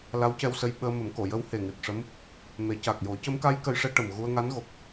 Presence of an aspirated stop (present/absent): absent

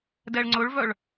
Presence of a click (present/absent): present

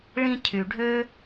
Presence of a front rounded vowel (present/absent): present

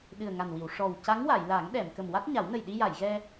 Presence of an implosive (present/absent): present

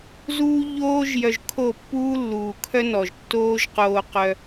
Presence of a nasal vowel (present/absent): absent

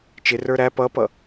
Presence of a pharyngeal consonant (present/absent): absent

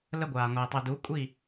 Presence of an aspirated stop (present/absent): absent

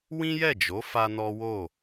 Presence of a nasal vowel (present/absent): present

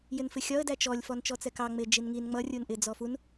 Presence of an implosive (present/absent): absent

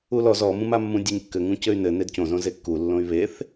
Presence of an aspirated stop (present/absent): absent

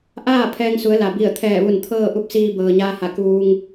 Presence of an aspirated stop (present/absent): present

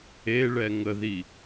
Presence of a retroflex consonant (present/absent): present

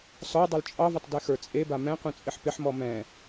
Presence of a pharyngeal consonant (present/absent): present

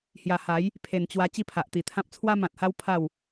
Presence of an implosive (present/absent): absent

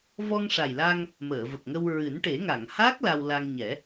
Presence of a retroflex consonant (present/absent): present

